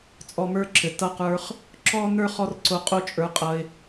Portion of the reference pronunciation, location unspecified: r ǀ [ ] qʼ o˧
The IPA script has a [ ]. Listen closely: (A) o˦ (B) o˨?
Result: B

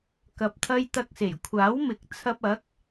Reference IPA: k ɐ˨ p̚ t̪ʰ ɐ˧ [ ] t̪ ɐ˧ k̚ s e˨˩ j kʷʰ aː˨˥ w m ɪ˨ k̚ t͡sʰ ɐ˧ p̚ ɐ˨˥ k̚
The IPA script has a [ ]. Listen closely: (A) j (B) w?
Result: A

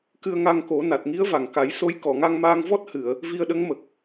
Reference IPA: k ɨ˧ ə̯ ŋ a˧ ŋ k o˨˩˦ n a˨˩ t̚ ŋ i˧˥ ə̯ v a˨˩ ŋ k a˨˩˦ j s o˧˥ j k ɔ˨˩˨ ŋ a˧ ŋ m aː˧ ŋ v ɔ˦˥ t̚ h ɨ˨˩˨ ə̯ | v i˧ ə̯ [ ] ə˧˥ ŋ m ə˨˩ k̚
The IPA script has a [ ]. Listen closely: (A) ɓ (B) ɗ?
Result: B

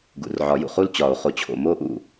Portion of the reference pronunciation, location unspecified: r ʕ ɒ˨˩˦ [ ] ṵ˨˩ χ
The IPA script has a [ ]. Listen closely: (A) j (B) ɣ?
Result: A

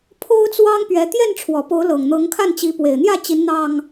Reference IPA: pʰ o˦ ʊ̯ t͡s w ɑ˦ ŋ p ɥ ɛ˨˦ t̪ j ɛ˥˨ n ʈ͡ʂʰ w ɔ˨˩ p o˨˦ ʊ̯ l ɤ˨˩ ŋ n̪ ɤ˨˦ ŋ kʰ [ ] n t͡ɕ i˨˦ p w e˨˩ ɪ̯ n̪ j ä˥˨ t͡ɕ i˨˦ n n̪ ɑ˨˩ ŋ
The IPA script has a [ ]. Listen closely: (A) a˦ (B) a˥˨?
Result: B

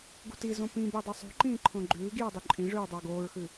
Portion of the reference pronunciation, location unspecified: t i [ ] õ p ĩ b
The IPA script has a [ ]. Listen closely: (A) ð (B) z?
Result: B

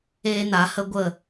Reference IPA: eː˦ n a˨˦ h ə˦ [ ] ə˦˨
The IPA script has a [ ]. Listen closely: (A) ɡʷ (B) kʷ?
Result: A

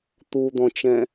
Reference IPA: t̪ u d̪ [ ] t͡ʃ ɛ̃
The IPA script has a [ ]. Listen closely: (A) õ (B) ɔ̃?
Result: B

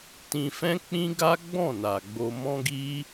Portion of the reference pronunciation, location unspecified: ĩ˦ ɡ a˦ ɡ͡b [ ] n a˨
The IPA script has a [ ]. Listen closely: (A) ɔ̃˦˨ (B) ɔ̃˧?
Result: A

